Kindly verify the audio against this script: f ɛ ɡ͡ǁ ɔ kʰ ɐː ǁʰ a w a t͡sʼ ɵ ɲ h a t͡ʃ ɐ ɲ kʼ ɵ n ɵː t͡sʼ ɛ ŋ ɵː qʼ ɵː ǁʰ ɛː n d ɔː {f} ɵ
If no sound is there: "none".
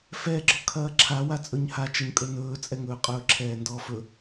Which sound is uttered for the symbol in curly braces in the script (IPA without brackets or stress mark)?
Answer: f